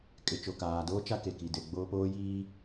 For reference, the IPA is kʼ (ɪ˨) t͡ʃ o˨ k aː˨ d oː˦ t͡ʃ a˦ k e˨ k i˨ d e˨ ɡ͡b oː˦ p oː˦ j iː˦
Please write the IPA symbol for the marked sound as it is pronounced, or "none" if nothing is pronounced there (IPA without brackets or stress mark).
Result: ɪ˨